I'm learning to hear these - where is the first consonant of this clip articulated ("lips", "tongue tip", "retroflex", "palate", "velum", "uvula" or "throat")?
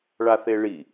retroflex